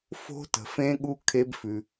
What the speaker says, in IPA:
fo̤˦˥tə̤˩fẽ˦˥ɠu˦˥ kʰe˦˥bfʉ˩

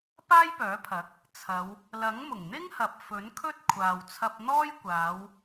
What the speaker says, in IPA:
paː˥jpœː˨˥pʰɐ˨˥k̚ | t͡sʰɐ˨˧w | lɐ˨˥ŋmʊ˨˩ŋn̪ɪ˥ŋhɐ˨p̚ fɵ˨˥nkʰɵ˥t̚kʷʰaː˨w t͡sʰɐ˧p̚n̪ɔː˥jkʷaː˨˧w

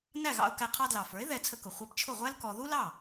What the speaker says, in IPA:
næ˥˩ɣɑ̰˧ʊ̯kæ˧ qʰɑ˧dlɑ˩fə˞˩˥ɪ̯ ðɛ˧ t͡sʰə˧kʊ˩ χʷɛ˧pt͡ʃʰʊ˥˩ʁʷæ˥l kɔ˧ ðu˥lɑ˥˩

